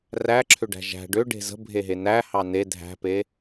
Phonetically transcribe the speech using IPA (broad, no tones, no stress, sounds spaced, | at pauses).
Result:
r æ ǁʰ ʏ ɖ æ̤ ʒ æ̤ ɖ ʏ ɖ e̤ z ə̤ bʱ e ɦ e n æ h ɑ n e dʱ æ̤ p e